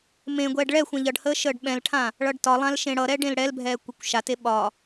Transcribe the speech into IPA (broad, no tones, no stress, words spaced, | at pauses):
mẽɡʷɛːɖ ɭɛ xʷɛ̃ʎʌɖhəː ʃəːɖɓɛ̃lʈʰã | ɭʌɖtɒlˠãl ʃẽɽʌɾɛ ɖẽlɽɛlbʱɛː kʷekʷʃate ɓɒ